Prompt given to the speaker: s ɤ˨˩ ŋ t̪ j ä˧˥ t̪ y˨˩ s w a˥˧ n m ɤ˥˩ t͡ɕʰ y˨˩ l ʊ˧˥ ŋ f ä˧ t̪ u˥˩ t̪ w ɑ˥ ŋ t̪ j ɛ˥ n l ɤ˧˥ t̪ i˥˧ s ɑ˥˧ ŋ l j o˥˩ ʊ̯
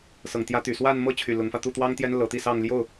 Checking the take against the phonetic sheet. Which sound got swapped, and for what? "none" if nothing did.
none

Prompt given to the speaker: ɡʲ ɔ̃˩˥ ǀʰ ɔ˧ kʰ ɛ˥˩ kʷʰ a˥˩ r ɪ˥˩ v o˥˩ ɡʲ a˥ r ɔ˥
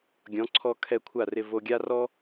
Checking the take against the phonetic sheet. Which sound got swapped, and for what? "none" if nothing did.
o˥˩ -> o˧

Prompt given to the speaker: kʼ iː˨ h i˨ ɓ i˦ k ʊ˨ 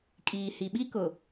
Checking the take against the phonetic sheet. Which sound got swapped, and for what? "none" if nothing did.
none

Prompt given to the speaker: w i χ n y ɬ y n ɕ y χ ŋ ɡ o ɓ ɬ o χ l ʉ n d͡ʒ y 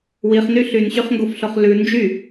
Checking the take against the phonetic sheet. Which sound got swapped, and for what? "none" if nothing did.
ɓ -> f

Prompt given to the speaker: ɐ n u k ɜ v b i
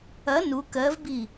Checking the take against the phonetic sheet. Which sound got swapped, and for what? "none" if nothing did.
none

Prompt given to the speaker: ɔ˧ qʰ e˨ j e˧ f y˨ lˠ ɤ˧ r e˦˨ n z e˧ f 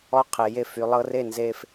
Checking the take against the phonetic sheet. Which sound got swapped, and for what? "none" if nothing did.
none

